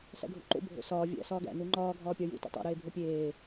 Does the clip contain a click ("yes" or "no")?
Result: yes